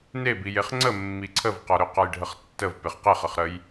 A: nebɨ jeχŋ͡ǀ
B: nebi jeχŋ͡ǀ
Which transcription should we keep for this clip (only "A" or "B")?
B